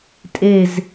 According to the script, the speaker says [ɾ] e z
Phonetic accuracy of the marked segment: incorrect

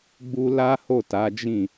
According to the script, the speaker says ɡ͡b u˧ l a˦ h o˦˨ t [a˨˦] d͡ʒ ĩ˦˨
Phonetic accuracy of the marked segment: correct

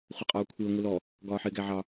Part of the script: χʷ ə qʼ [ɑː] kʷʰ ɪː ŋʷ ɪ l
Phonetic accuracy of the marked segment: incorrect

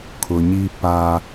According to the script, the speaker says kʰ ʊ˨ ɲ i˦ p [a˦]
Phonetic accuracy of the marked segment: correct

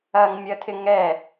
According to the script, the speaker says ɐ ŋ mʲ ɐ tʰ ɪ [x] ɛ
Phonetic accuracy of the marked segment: incorrect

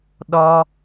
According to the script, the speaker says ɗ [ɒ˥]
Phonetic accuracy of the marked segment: correct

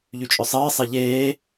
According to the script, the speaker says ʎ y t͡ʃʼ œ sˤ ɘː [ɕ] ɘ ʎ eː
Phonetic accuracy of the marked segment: incorrect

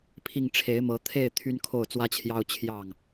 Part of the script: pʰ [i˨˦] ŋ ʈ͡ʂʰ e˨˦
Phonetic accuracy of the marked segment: incorrect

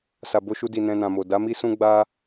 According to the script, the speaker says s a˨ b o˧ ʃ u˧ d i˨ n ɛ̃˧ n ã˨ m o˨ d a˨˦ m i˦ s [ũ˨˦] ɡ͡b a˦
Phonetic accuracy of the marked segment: incorrect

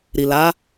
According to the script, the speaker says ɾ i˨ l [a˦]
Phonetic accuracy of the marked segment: incorrect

